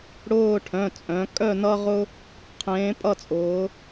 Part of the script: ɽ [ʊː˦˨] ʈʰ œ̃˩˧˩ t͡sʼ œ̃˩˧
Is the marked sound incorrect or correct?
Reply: correct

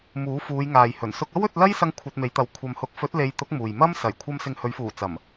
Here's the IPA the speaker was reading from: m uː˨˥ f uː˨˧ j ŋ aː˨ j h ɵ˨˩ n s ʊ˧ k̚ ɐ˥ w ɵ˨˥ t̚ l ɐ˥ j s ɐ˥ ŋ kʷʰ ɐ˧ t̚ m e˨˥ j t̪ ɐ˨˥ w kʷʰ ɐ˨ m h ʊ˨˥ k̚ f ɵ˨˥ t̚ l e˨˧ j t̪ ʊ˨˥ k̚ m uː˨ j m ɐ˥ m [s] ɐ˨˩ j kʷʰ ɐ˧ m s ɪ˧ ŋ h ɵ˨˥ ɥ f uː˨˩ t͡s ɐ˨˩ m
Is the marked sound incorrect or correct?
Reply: correct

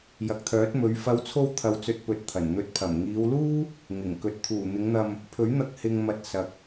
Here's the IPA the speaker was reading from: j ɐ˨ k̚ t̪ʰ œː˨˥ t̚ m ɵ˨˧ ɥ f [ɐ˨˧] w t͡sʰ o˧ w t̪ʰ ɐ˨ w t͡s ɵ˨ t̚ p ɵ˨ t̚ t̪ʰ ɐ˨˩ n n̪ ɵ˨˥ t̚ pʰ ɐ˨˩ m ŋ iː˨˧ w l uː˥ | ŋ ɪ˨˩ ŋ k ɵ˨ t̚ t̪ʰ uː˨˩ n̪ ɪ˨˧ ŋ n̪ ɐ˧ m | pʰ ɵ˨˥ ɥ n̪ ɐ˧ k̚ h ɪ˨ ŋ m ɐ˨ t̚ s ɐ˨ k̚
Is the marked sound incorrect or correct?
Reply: correct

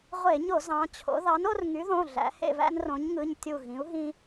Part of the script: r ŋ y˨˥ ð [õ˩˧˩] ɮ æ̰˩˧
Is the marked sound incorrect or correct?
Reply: correct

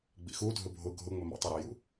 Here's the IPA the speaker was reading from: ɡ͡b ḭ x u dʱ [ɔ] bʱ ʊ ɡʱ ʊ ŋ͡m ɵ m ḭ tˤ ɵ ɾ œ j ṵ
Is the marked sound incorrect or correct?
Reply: incorrect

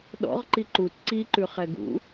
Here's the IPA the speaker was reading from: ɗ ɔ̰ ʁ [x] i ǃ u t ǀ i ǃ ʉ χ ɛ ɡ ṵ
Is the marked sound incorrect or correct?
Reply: incorrect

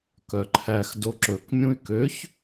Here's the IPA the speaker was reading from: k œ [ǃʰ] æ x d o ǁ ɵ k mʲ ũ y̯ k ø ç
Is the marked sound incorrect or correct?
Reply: correct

